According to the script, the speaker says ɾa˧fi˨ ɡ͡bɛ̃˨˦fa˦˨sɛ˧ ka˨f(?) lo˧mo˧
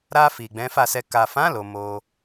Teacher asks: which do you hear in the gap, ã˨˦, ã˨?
ã˨˦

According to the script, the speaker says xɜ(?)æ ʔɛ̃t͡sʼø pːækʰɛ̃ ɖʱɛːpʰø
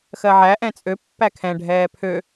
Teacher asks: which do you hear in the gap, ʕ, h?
ʕ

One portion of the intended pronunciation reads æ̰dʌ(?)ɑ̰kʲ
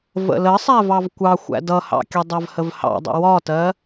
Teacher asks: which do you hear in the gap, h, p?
h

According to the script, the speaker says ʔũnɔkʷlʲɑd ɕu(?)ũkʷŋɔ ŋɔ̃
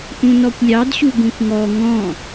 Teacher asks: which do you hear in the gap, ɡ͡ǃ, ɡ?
ɡ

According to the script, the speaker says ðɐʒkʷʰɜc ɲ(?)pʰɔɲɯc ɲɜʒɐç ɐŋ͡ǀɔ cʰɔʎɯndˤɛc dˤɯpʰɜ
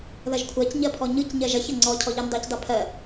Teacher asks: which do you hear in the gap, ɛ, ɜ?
ɜ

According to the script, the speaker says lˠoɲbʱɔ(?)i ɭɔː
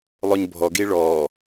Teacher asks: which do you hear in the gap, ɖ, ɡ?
ɡ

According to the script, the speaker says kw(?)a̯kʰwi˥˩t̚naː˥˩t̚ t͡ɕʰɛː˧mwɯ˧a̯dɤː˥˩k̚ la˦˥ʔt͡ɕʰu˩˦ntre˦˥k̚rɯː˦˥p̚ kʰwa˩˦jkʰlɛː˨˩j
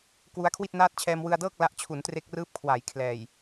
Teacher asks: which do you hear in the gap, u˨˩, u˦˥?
u˦˥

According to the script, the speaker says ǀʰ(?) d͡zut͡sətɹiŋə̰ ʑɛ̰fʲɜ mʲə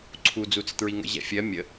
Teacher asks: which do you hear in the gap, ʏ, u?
u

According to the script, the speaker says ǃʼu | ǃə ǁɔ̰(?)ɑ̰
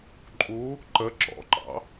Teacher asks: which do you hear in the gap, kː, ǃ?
ǃ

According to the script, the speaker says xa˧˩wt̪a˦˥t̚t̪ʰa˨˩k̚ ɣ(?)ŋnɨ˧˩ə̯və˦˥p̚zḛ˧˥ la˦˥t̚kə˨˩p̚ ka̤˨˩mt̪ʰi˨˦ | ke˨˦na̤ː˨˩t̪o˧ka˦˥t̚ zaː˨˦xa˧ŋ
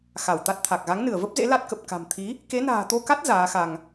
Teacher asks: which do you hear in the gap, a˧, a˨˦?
a˨˦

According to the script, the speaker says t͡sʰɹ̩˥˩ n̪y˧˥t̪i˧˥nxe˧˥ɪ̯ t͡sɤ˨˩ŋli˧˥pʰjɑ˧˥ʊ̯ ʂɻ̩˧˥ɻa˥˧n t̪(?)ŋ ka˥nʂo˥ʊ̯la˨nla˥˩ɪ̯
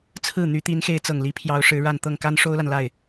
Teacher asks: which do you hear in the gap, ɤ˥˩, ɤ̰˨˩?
ɤ˥˩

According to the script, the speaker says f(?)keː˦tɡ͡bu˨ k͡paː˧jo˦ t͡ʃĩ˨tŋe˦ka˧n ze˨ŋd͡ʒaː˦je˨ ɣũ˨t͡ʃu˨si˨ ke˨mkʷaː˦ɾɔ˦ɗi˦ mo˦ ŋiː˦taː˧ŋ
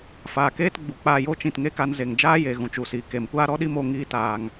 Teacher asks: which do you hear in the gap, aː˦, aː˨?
aː˨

